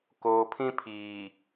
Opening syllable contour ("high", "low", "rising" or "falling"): low